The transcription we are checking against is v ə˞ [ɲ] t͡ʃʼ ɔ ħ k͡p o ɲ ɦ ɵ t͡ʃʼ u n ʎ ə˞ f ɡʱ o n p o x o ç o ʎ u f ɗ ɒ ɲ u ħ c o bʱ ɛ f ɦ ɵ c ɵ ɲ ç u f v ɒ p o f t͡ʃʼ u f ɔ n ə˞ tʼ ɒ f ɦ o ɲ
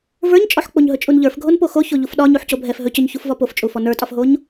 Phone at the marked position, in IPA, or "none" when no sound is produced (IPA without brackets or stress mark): ɲ